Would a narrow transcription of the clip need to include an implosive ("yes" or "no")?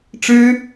no